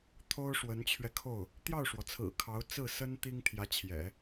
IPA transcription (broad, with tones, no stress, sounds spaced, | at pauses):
t̪ʰ o˥ ʊ̯ ʂ w ə˧˥ n t͡ɕʰ ɥ ɛ˧ kʰ o˥˩ ʊ̯ | t̪ j ɑ˥˩ ʊ̯ ʂ w ɔ˩ t͡sʰ ɹ̩˨˩ kʰ ɑ˧˥ ʊ̯ t͡s ɹ̩˥˩ s ə˥ n t̪ i˥ ŋ t̪ʰ j ä˧˥ t͡ɕʰ j ɛ̰˨˩˦